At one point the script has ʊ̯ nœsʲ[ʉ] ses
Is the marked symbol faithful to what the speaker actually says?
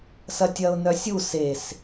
no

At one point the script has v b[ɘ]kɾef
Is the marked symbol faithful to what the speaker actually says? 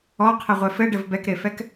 no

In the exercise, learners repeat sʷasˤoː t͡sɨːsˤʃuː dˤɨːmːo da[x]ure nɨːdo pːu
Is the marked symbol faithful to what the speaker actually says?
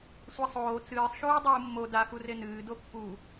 yes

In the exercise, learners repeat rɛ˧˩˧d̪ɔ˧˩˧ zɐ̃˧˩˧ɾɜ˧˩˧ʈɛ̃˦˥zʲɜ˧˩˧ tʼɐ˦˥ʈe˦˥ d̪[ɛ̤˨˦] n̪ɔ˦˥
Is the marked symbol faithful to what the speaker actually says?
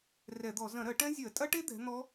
yes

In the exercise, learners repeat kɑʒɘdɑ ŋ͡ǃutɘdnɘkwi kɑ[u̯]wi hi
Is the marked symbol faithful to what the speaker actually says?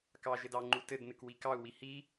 yes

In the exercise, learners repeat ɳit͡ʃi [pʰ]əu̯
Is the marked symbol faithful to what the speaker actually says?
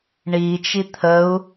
no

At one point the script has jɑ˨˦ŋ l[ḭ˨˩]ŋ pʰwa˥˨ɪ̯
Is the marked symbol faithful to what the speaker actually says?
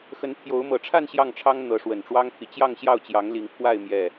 no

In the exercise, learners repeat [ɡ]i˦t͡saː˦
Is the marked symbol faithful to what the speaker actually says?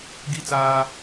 yes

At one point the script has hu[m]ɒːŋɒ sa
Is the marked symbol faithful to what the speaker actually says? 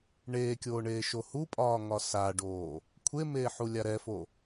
no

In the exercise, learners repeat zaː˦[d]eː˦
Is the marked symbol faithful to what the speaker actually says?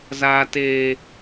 no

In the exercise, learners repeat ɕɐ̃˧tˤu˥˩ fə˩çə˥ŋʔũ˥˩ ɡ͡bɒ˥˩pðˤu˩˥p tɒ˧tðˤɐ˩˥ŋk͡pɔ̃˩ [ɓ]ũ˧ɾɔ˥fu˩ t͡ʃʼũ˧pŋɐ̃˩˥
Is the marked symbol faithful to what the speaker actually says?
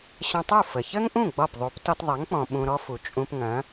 yes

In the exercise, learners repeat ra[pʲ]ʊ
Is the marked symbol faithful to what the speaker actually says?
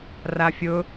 no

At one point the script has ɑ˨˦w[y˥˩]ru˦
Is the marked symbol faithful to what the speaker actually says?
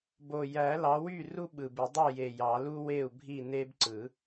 yes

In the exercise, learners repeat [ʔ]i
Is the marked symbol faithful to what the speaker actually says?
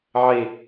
no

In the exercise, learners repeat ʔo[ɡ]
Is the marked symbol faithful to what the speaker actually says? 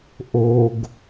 yes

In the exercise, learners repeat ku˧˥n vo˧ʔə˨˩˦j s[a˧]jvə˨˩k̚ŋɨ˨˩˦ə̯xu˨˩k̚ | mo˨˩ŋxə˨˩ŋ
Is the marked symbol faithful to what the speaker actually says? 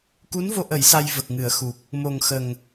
yes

